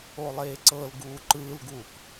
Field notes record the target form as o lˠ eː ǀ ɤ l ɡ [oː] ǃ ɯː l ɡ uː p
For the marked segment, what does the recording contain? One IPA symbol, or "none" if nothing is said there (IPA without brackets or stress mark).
uː